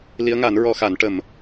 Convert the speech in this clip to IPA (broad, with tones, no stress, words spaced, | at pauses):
li˧˥ə̯ŋa˨˩˦n ɹɔ˧xa˨˩˦n ʈə˨˩m